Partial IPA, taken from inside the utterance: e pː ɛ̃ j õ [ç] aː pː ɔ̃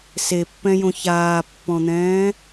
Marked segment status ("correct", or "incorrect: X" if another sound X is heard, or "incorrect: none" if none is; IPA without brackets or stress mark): correct